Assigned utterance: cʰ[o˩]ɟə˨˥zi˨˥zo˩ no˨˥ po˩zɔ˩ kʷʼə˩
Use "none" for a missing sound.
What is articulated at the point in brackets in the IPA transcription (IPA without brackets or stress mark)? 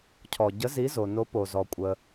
ɔ˩